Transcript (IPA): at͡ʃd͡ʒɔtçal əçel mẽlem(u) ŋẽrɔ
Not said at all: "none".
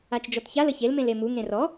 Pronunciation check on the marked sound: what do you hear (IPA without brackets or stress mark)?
u